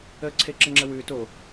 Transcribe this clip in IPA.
ə ǀʰ e ǁ ə ŋ͡ǁ ə w ʉ t o

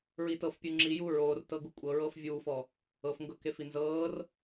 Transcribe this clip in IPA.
ɹ i t ɤ f pʲ u ŋ͡ǁ i j u ɹ oː r t ɤ ɡ u kʷʼ ɤ ɹ ɤː f vʲ uː f ɔ | ɤ f ŋ ɡ ɤ k e f i n z ɤː r

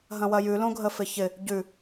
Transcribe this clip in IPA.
ɦ ɐ̃ w ɐ j ʉ l õ ɡʱ ə f ɪ ç ɪ | ɟ ʉ

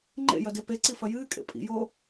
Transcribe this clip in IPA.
ŋ͡ǃ ḛ j ɐ d e p e ǀ i f ɐ j ɨː kʼ ḛ pʼ ḭ j oː

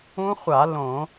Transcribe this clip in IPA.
ũ˦˥ χʷ a˧˩˧ l õ˧˩˧

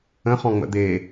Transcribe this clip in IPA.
ə̃ χ ɔ̃ ŋ͡m ə̰ d̪ e

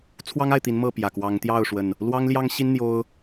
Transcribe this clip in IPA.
t͡sʰ w ɑ˦ ŋ a˥˨ ɪ̯ t̪ i˨˦ n m ɤ˥˨ p j ä˨˩ k w ɑ˨˦ ŋ t̪ j ɑ˥˨ ʊ̯ ʂ w ə˨˩ n | l w ɑ˦ ŋ l j ɑ˦ ŋ ɕ i˦ n n̪ j o˦ ʊ̯

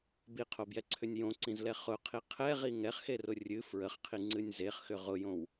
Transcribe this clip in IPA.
b i qʰ o b j ɛ ǀʰ ʏ nʲ j õ ǀ ĩ z l ɛ χ ʊ qʰ i qʰ ɛ ʁ i ŋ ɛ χ x e r ʊ rʲ ɨ f ɹ ə χ qʰ i ŋ͡ǀ ɨ nʲ z e χ x ʏ ʁ ʊ j õ w

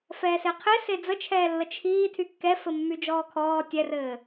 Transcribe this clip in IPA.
f ɛː s e qʰ e s e d͡z ə t͡ʃʰ ɛː lː ə t͡ʃʰ iː tʰ y kː ɛ f ɘ mː y d͡ʒ ɔː kʰ ɔː tʲ ɛ r ɘː

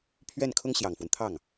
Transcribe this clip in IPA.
pʰ ɥ ɛ˥˩ n kʰ ʊ˥ ŋ ɕ j ɑ˨˩ ŋ f w ə˦ n t̪ʰ ɑ˥˩ ŋ

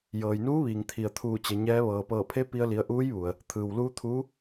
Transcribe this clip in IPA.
j ɤː˩ j n uː˧˥ ʋ iː˩ ŋ t̪ʰ i˩ ə̯ t̪ʰ uː˧˩ t͡ɕ e˩˧ ɲ ɛː˧˥ ʋ ɤː˩ p ɤː˧˩ pʰ e˧˥ p i˧ ə̯ l i˩˧ ə̯ ʔ uː˧˥ j ʋ u˩ ə̯ | t̪ʰ ɯː˩ w l uː˧˥ t̪ʰ uː˧˥

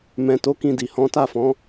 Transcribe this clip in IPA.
m ɛ̃˧ t o˦ k ĩ˦˨ d i˨ h ɔ̃˨˦ t a˦˨ f ɔ̃˨˦

